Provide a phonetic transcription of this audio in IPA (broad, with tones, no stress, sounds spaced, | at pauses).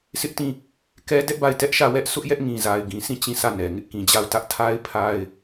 s ɪ˦ ʔ t ĩ˦˨ | k ɛ˦ d ɛ˦ ʔ b a˦˨ ɪ̯ t ɛ˦ ʔ ʃ ä˦˨ w ɛ˦ ʔ sʰ ʊ˦ ʔ j ɛ˦ ʔ ŋ ĩ˨ z a˨ ɪ̯ ɡ ĩ˨ s ĩ˦˨ t͡ɕ ĩ˦˨ s ä˦˨ n ɛ˨ ŋ ɪ˦ ʔ k ĩ˨ d͡ʑ a˦˨ ʊ̯ t ä˦ ʔ tʰ a˦ ɪ̯ pʰ a˦ ɪ̯